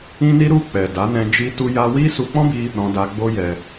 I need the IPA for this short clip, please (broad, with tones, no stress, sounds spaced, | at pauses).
ĩ˦ n i˦ ɾ u˦˨ k͡p ɛ˨ d a˨˦ n ɛ̃˧ d͡ʒ i˦ t u˦ j a˦ w i˦ s u˧ k͡p ɔ̃˦ b i˧ | ɾ ɔ̃˧ d a˧ ɡ͡b o˦ j ɛ˧